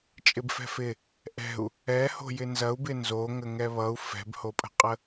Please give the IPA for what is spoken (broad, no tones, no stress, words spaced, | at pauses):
t͡ʃʼɪbfɛ̤fɪ | ʔɛ̤u̯ | ɛho̤ jɪnzɐu̯bɪ nzo ŋəŋɛβʌu̯ fɛ̤bhopʼə̤qʼə